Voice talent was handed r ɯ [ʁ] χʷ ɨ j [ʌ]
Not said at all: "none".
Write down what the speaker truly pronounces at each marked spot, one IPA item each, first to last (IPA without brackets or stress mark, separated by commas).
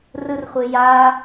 r, a